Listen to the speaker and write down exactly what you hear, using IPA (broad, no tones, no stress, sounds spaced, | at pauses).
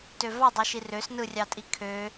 t ø v ɑ dˤ y ʃ i r ø s n ɯ rʲ ɑ tʼ i kʰ ø